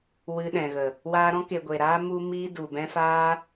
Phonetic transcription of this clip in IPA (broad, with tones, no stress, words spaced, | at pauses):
wɨ˧ɗɛ̃˨ɣə˨ | waː˧ɾɔ̃˦ke˨ ɡʷe˨ɾaː˦ mu˦ miː˦du˨bɛ̃˦ faː˦